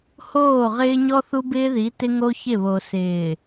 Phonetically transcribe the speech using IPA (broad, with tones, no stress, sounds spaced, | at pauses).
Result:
h oː˦˨ ʁ ɪː˦ ɲ ɔ˦ θ u˦ b ɪː˦ ð i˨˦ t ɪ˦ ŋ o˦ ç ɪ˦˨ β o˨ s ɪː˨